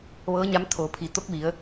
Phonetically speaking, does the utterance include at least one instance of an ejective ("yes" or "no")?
no